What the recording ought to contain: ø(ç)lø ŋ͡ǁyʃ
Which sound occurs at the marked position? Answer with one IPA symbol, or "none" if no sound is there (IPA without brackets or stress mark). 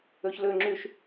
ç